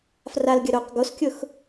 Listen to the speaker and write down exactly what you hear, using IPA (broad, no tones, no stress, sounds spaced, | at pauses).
f r a l ɡʲ ə ɾ o q ɡ o s kʲ ʊ x